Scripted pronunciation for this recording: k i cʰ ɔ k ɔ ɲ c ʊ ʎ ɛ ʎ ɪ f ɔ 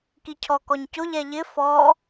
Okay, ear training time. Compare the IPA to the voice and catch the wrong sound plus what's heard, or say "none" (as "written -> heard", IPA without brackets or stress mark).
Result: none